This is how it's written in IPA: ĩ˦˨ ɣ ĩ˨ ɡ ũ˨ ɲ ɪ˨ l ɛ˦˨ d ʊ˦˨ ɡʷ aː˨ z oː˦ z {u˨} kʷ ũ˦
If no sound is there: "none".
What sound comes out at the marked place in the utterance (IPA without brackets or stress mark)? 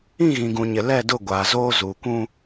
uː˨